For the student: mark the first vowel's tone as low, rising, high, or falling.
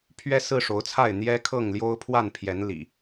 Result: high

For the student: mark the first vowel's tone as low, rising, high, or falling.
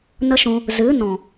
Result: high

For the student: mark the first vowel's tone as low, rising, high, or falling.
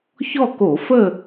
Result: falling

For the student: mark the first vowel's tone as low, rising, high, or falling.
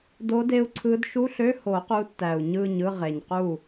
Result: rising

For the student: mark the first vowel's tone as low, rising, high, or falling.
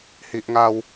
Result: high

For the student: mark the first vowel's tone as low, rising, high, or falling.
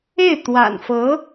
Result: falling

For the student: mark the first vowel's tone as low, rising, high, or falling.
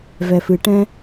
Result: low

